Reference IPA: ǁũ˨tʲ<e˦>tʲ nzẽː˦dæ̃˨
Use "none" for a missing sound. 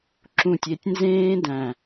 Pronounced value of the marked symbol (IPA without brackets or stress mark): e˨